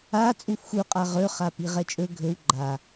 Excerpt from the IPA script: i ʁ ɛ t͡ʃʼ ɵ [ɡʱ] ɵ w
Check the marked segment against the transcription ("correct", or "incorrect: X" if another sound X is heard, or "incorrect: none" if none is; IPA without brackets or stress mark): correct